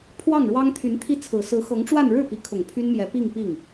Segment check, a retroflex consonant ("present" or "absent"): present